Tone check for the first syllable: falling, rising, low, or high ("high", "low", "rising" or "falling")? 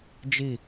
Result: falling